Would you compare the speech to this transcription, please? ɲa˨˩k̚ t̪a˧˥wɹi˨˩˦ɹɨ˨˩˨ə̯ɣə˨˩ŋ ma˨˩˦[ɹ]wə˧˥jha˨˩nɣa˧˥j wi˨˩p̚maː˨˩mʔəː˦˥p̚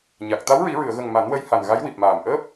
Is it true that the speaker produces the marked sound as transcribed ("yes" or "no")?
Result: no